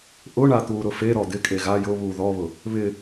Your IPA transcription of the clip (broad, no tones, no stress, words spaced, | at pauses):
ʔʊɳa t̪uːɾʊfeɾɔ d̪ɪkʼe ɣa jʊβuː ðɔβʊ | βɪ